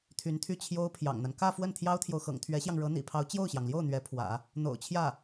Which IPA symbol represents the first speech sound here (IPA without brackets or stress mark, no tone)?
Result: t̪ʰ